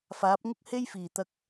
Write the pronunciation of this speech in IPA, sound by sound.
faː˨˥p̚ŋʊ˥k̚he˥jfiː˨˩ t̪ɐ˧k̚

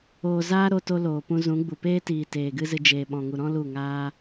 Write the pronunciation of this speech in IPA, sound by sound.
oː˨ zaː˦ɾo˧to˧ loː˨pũ˧zũ˨˦ɡ͡bu˨ peː˦tiː˨ teː˨ɡɨ˦zɨ˧ d͡ʒeː˨ɓɔ̃˨ŋu˨ɾɔ̃˦ lu˦˨ŋaː˦

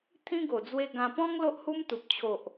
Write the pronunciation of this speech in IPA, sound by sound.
t̪ʰĩ˦ɡo˨˩d͡zwe˧ ɡã˧ pɔ̃˦ŋ lo˦ʔhu˦mt̪u˨p̚ t͡ɕʰo˨ʔ

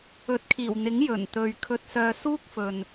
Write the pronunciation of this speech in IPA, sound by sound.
ɵ˨˥t̚kʰiː˨˩wn̪ɪ˨˥ŋ jɵ˨˩nt̪ɵ˨ɥ kʰɵ˧t̚sœː˧suː˥k̚fɵ˨n

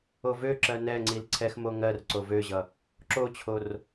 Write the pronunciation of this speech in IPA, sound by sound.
ovøǁɜ nɛŋ͡ǀil ǀʰɛxmo ŋɜrǀo vøʑʌ | ǁot͡ɕʰor

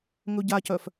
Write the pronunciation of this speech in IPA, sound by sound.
ŋɵɟacœf

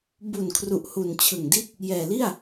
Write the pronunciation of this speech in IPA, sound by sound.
bu˨˩n kʰru˨˩ʔhu˨˩n t͡ɕʰɯ˨˩ŋdi˦˥t̚ | jɛː˨˩li˥˩a̯

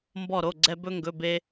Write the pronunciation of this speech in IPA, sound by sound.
mbɔ˧˩ɾo˩˧˩ɡ͡ǀɛ˧ bɵ˧ŋɡɵ˩˧˩ be˧

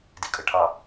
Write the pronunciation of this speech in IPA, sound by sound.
dikʼəʈʰɑ

